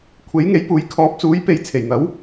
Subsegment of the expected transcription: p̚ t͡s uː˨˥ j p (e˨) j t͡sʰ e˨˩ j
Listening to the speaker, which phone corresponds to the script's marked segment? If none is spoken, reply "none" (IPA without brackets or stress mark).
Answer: e˨